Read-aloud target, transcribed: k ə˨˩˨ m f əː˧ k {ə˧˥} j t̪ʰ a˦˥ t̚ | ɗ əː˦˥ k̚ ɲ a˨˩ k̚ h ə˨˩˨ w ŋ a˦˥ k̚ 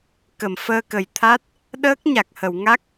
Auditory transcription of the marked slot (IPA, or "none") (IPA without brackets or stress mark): ə˨˩